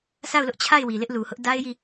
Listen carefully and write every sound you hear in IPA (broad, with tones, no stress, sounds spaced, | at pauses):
s a˦˨ ʊ̯ l ʊ˦ ʔ t͡ɕʰ a˦˨ ɪ̯ w i˨ l ɪ˦ ʔ l u˨ h ʊ˦ ʔ d a˦ ɪ̯ j i˦˨